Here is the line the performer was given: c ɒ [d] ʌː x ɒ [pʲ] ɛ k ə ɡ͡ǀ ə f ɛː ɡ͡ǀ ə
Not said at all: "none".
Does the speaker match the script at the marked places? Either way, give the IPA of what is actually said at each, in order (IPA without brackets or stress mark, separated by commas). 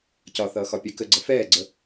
θ, pʲ